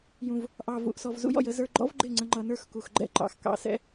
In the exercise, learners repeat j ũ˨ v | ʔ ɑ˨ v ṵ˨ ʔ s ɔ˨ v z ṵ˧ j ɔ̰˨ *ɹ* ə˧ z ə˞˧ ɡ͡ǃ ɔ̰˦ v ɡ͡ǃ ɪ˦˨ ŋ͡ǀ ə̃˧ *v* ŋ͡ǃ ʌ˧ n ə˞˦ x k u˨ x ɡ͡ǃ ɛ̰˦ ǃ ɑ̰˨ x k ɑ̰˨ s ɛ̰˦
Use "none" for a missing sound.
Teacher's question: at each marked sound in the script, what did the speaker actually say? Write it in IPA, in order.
j, none

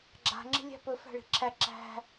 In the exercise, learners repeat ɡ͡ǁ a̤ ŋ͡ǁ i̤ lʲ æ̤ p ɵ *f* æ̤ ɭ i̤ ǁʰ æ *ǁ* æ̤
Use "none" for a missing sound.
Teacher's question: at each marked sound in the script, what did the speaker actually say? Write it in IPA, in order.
f, ǁ

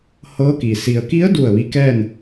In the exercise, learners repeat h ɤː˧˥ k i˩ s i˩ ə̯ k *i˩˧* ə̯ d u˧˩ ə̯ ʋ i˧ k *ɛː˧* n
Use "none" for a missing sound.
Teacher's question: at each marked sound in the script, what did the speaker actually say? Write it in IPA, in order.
i˧˥, ɛː˥˨

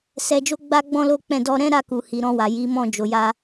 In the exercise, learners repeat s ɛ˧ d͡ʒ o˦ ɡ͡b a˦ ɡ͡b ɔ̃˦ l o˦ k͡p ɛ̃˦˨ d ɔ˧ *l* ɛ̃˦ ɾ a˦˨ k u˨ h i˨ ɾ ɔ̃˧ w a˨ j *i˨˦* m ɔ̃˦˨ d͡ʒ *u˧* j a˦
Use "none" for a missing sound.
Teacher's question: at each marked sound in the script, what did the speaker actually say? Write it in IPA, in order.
ɾ, i˨˦, o˧

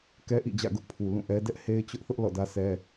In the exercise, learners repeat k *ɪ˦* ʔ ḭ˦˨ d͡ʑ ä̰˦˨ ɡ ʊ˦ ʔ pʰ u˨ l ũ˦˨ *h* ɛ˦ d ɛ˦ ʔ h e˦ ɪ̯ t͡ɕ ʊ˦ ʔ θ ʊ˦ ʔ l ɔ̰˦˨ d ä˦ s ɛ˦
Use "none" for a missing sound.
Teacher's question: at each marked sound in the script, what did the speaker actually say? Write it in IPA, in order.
ɛ˦, ʔ

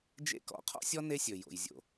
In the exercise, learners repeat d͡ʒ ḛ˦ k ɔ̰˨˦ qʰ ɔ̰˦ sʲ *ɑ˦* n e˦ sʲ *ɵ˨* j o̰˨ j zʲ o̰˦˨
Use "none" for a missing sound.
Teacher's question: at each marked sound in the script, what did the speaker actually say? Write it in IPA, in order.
ɔ˦, ɵ˨

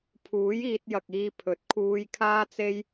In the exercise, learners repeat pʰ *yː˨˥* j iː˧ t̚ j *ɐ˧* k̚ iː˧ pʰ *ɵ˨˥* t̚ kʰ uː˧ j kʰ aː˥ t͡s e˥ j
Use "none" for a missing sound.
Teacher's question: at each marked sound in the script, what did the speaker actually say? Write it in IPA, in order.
uː˨˥, ɐ˨, ɵ˨˥

